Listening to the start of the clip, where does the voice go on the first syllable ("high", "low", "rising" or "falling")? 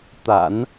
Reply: low